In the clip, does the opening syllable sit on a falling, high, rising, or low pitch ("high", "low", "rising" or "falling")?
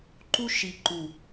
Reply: high